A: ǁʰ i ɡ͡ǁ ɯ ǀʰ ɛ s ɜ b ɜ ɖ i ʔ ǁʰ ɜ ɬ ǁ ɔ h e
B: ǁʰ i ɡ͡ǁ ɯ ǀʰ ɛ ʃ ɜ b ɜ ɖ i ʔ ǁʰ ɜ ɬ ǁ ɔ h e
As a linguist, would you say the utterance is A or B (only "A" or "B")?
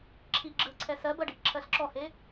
A